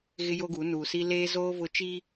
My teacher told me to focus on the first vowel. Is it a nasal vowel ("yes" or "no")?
no